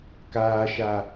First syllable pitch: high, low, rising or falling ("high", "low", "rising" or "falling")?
low